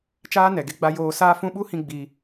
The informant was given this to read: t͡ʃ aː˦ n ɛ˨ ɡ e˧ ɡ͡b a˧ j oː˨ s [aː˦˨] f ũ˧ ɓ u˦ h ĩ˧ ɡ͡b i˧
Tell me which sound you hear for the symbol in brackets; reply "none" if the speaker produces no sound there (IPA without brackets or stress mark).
aː˧